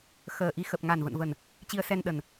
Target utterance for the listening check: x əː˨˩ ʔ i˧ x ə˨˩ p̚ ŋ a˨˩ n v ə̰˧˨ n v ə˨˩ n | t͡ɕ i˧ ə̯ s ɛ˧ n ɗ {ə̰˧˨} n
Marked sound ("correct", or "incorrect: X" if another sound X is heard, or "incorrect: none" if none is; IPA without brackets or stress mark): incorrect: ə˨˩